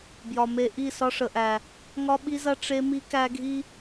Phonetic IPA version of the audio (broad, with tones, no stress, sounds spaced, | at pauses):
b j ɒ˨ m e˦ ʔ i˦˨ s ɒ˦ ʂ ə˨ ʔ æ˨ | ŋ ɒ˦ ɓ i˦ z ɐ˦ ʈ͡ʂ e˦ m i˦ k æ˦ ɡʱ i˦